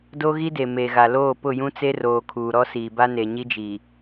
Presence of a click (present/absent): absent